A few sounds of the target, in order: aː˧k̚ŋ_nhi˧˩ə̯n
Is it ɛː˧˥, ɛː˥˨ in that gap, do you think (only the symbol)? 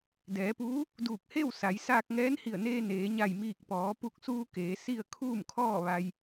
ɛː˧˥